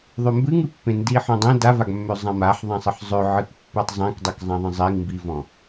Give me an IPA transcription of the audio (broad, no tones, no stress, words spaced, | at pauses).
ðˤømbɨŋɨpːẽ ndiħɔ̃dˤẽ davaɡmːø zˤãmaħðˤãsˤɨħ zˤø ʕɨkpːɨtˤzˤẽkdˤɨk zˤãðˤə̃zˤiŋ mbivɔ̃